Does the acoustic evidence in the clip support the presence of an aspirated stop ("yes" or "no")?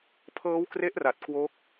yes